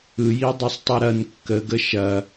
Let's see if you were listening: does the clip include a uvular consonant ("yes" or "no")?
no